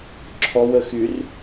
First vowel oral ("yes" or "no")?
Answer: yes